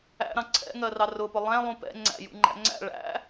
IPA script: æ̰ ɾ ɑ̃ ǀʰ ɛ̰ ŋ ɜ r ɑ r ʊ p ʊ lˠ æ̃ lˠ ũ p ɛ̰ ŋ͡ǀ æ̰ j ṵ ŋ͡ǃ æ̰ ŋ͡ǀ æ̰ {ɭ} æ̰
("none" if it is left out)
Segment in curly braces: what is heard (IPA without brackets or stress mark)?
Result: ɭ